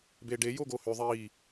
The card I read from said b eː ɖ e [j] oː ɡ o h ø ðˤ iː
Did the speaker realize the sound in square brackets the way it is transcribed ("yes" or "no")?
yes